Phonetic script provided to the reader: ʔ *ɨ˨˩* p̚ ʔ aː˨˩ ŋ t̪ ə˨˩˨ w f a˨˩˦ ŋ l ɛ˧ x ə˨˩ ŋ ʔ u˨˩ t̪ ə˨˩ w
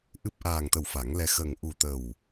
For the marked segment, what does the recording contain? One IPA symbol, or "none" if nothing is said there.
ɨ˨˩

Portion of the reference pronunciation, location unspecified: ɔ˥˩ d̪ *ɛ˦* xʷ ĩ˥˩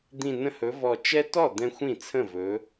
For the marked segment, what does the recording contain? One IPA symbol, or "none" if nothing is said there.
ɛ̃˦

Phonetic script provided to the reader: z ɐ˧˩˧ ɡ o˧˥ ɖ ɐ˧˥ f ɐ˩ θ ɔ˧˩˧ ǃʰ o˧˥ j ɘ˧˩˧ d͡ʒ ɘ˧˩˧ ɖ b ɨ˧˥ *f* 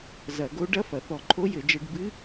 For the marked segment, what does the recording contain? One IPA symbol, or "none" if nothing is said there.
none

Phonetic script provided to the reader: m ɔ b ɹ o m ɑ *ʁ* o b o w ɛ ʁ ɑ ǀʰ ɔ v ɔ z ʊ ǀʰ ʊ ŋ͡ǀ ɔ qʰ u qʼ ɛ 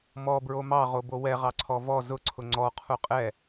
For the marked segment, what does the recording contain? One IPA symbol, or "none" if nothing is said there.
ʁ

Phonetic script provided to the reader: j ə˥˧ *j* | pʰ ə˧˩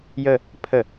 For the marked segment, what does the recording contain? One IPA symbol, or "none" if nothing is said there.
none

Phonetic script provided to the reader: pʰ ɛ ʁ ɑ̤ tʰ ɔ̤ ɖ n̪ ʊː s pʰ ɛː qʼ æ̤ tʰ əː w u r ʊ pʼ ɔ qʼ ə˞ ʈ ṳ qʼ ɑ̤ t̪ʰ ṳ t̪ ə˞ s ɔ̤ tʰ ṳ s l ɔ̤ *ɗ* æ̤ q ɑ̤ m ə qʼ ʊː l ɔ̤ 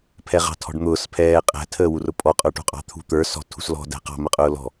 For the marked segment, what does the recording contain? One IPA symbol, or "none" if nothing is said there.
d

